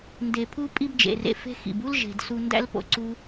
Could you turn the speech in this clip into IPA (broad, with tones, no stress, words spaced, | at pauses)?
nde˨pʰu˧ pʼi˧bd͡ʒḛ˨rḛ˨fe̤˧ xḭ˨bu˦l ʒe̤˨d su˧ndæ̰˦lpo̰˨ ǀu˧